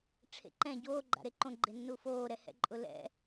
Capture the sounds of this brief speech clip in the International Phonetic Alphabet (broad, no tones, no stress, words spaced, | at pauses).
ʈ͡ʂʰḛǃɛ̃ ɟoːɡ͡ǃa̰ɾe ǃõɡ͡ǃenːu foːɾɛhɛ̰ ǃʼʊlɛ̰